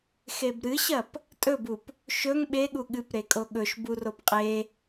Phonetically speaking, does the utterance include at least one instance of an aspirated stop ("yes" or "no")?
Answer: no